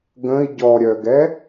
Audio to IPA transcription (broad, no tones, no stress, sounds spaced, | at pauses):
ɡ ə̃ i̯ ɟ ɔ ɾʲ œ ɡ ɛ